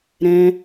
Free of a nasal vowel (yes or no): no